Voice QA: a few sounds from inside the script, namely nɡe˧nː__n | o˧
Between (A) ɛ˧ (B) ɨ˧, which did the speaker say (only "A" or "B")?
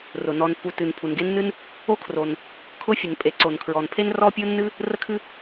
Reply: B